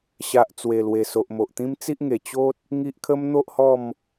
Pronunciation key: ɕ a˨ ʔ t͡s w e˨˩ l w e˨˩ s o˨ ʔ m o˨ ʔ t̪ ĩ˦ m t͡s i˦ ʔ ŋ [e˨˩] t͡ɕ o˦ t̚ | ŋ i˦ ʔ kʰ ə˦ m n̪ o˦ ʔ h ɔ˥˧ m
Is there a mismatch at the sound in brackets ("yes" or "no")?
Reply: no